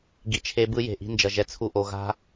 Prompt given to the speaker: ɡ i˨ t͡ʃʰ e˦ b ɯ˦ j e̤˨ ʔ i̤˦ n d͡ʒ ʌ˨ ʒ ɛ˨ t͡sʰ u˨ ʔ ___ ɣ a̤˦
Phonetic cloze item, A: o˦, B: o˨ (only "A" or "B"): B